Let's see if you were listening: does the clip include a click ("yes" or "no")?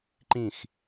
yes